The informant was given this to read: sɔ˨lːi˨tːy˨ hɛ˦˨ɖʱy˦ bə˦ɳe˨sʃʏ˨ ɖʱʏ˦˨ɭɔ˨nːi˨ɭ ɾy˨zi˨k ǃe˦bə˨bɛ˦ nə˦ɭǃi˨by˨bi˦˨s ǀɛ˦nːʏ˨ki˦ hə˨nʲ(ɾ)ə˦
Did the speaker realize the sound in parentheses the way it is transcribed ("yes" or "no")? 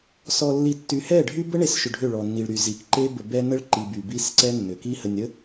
yes